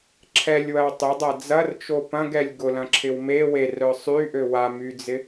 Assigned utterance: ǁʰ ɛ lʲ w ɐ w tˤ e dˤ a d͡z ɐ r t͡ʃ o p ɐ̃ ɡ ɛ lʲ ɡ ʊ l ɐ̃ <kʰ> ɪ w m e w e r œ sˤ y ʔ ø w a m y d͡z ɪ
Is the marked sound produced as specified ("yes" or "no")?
no